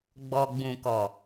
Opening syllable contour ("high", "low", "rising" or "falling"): low